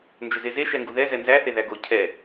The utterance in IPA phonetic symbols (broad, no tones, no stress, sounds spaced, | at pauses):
n d͡ʒ ʏ z e z e ʃ ɛ ŋ ɡ u ð ɛ z ɛ n z æ θ e ð æ ɡ o cʰ ɛ